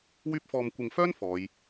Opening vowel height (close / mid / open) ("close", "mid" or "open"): close